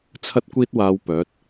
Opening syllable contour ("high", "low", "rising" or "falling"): high